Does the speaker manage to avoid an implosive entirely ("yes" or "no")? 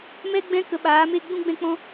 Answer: no